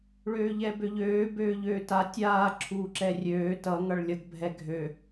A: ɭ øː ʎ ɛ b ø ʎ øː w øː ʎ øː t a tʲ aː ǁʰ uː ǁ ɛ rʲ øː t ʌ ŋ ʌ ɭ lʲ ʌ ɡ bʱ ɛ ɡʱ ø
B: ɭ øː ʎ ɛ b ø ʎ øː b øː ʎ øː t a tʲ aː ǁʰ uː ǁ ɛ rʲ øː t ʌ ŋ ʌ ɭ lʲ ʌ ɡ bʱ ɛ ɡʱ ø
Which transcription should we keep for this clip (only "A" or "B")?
B